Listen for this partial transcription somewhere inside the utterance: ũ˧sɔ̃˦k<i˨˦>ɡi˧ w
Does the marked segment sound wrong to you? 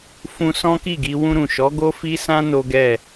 yes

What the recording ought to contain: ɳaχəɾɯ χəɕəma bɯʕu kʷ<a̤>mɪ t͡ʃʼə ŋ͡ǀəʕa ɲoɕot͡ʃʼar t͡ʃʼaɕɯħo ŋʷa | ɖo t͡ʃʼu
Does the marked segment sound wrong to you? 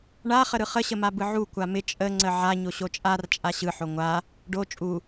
yes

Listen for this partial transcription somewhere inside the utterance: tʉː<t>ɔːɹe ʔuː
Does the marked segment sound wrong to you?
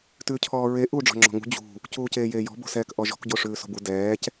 yes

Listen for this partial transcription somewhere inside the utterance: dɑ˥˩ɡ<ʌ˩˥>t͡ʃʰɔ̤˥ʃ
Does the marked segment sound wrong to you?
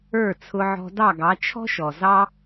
yes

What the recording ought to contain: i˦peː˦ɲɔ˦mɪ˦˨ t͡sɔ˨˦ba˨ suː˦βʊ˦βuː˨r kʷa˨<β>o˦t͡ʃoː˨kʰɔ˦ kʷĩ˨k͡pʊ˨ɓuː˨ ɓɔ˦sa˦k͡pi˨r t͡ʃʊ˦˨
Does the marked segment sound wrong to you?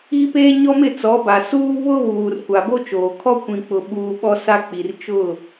yes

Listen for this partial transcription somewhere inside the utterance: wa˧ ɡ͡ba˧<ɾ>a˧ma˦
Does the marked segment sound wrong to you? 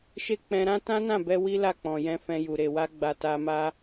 yes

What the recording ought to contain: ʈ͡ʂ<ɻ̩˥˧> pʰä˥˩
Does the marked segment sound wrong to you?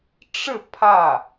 no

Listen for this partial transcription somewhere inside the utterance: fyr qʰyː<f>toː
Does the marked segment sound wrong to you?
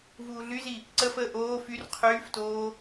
no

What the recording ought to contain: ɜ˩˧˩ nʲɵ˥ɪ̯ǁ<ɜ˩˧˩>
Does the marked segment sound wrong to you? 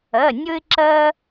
yes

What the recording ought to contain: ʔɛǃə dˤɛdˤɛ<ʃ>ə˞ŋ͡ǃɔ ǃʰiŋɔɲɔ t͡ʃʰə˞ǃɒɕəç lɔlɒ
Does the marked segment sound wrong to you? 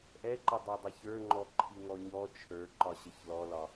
yes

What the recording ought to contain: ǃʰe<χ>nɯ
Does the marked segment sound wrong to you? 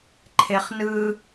no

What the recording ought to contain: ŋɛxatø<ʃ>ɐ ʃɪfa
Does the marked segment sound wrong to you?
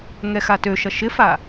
no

